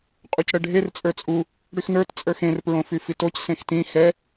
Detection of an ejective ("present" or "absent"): present